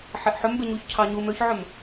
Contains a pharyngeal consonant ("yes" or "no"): yes